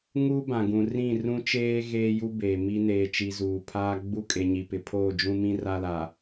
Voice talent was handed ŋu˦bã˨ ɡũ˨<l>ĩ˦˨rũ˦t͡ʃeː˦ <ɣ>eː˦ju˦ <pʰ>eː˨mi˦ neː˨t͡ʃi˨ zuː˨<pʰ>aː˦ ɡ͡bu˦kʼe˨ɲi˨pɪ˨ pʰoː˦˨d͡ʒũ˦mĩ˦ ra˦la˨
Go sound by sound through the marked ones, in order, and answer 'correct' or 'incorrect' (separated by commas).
incorrect, correct, incorrect, correct